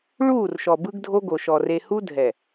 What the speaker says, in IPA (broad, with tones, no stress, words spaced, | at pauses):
ɭuː˦˨rʃɔ˨ bɯ˦ɡdʱo˦ɡo˨ʃɔ˨ re˨hu˦ dʱɛ˨